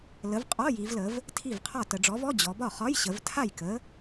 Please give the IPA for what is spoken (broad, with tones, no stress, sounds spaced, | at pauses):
l ə˨˥ v qʼ ɔ˧˥˧ j i˩˧ v l ə˩˧ v | tʰ i˥˩ v qʰ ɒ˥˩ t ə˧˩˧ ɖ͡ʐ ɔ˨˥ v ɔ˧˥˧ d͡ʑ ɔ˩˧ b ɒ˥˩ χ ɒ˧˥˧ j ɕ ə˩˧ v tʰ a˥˩ j k ə˨˥